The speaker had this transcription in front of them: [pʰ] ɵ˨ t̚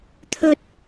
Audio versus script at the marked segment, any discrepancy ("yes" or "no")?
yes